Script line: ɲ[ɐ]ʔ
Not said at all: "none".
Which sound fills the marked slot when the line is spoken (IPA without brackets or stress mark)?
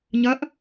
ɐ